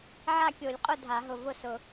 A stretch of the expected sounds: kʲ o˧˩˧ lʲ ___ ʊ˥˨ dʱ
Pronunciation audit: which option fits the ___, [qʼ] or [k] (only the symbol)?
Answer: qʼ